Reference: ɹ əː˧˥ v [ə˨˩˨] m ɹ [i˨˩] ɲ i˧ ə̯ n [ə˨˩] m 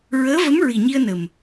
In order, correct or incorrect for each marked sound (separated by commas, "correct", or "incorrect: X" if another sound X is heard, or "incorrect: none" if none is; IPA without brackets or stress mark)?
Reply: incorrect: ə˧˥, correct, correct